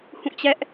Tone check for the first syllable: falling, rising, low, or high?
falling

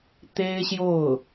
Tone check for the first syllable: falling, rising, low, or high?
high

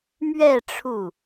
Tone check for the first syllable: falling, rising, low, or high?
falling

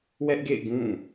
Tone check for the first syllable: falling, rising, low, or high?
high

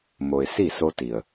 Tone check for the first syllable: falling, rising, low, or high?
low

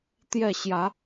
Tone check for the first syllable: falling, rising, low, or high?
falling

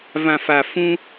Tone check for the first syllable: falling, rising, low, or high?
low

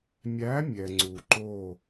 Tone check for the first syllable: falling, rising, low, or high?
rising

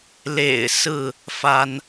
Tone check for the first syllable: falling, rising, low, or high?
low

